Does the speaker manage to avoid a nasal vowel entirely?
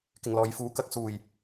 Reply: yes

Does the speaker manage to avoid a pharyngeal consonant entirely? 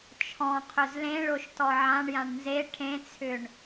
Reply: no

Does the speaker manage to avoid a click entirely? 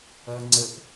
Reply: no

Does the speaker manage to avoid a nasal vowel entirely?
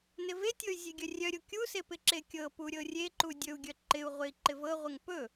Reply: yes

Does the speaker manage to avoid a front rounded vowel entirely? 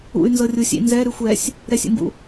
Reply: no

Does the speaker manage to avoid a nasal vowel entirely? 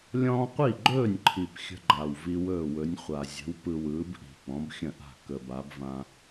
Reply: no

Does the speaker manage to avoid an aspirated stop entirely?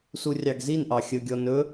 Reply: yes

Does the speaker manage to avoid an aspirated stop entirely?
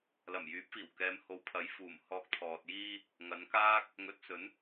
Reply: no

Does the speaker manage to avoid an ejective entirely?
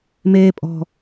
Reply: no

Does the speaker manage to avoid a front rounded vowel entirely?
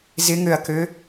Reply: no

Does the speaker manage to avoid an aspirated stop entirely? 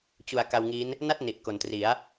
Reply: yes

